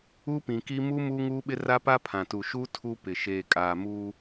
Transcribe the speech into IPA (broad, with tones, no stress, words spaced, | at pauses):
u˦pĩ˨ki˦ mu˦ muː˦ŋuː˦ɓɪ˦ ra˦pa˦pʰã˨tu˨ ʃu˦ tʰu˦pɪ˨ ʃeː˨kʼaː˨muː˦